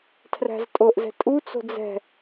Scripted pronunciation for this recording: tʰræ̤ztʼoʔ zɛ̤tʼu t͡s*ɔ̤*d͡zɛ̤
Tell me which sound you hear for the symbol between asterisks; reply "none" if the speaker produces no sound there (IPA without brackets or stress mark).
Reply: o̤